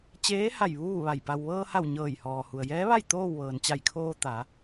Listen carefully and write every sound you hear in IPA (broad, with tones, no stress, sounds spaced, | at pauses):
t͡ɕ eː˧˥ h a˧˩ j ʋ uː˥˨ ʋ a˧˩ j p a˩ w ʋ ɤː˧ h a˧˩ w ɲ ɤː˧˩ j h ɔː˩ h u˩ ə̯ j ɛː˧˥ ʋ a˥˨ j t̪ oː˥˨ w ʋ ɤː˩ n t͡ɕ a˧˩ j kʰ oː˧ t̪ a˩˧